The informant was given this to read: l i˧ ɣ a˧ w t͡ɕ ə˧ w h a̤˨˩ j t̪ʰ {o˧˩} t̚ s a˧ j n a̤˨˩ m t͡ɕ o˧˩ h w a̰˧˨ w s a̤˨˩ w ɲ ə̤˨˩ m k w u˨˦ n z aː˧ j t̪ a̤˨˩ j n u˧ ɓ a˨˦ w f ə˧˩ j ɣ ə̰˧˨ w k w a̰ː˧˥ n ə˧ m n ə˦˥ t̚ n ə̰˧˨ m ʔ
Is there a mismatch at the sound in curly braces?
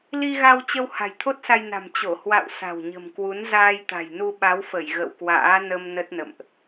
yes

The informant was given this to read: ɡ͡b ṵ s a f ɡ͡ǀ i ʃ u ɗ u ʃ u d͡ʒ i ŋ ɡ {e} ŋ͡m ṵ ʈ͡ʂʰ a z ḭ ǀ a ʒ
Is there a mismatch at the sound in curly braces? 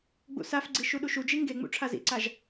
no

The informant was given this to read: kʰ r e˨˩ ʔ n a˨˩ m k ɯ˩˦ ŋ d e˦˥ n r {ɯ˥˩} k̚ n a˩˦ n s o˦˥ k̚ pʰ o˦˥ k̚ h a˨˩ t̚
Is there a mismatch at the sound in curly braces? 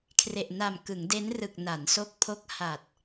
yes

